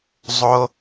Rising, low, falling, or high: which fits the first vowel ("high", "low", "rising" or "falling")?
high